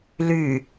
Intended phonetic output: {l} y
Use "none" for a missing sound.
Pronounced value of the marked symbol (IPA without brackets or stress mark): l